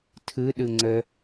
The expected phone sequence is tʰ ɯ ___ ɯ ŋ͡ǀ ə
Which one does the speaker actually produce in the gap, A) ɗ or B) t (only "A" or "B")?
A